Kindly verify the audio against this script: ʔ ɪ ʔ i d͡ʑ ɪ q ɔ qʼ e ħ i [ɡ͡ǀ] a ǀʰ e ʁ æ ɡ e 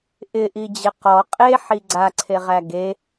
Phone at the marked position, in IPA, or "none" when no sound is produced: ɡ͡ǀ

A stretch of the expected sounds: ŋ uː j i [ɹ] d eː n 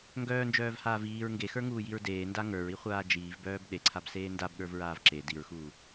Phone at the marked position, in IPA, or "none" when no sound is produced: ɹ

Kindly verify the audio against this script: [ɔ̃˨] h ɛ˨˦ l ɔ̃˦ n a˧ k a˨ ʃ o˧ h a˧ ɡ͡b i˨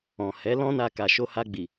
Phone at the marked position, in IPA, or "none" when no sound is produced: ɔ̃˨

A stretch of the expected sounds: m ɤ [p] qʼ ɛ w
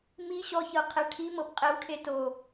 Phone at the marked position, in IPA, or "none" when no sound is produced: p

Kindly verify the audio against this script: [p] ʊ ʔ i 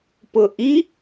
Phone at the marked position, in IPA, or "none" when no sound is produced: p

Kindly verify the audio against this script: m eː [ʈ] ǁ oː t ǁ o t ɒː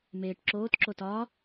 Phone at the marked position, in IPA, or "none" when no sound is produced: ʈ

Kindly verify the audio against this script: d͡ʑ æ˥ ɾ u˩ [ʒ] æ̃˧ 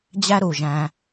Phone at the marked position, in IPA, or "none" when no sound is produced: ʒ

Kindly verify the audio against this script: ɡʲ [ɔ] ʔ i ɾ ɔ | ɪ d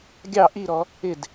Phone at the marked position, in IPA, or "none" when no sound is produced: ɑ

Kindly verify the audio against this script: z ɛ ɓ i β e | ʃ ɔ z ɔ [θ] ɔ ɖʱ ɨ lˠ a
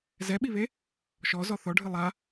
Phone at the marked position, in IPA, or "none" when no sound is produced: θ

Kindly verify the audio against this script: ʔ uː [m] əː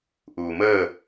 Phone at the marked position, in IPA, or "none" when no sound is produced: m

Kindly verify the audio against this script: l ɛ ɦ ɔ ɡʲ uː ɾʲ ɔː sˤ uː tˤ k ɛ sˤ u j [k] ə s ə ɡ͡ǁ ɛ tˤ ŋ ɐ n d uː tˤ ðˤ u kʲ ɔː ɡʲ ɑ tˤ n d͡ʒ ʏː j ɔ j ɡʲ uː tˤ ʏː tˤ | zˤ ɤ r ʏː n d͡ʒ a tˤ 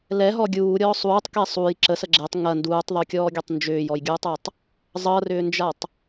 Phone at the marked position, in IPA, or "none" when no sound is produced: ǁ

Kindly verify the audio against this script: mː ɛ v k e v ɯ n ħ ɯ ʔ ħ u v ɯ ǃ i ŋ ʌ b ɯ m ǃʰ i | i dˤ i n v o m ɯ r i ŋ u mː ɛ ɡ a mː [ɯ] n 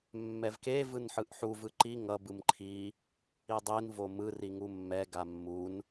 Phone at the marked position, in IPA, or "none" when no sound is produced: u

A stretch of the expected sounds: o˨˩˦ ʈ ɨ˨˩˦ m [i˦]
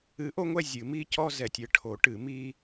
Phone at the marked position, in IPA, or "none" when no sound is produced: i˦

